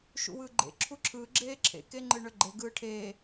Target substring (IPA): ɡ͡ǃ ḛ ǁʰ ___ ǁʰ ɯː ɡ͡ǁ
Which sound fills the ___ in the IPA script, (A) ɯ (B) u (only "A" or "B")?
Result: B